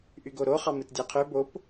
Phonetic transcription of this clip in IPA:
ʔyɡoɾo χɑmɯtdʲæqʰø bop

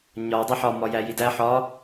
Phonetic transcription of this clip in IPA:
ɲɒ dˤiħɒ mɒjæjidæ ħɒ

